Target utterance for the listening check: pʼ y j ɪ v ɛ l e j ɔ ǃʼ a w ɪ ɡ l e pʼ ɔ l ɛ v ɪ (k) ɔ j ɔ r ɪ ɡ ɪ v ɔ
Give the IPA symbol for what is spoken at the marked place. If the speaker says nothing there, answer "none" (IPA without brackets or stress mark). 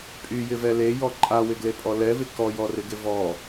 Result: k